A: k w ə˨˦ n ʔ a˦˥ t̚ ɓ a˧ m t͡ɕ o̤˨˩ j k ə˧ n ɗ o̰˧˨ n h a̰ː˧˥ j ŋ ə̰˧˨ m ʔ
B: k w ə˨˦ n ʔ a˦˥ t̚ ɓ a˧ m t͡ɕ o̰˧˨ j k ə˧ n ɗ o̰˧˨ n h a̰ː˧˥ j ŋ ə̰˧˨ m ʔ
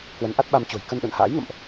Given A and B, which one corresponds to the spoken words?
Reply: A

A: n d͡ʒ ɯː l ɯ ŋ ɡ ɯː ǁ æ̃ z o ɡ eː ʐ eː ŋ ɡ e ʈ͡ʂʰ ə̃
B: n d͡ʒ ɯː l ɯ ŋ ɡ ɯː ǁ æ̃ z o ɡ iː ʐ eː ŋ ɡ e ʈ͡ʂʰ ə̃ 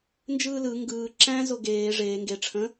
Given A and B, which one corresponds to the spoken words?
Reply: A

